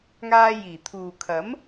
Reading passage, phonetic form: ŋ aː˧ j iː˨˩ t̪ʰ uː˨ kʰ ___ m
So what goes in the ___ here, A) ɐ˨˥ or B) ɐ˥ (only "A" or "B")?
A